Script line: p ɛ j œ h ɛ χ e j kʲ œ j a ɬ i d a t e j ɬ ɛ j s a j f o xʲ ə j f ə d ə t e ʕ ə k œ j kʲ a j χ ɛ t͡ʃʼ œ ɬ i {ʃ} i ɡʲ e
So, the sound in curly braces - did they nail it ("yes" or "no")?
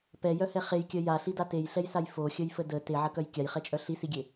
no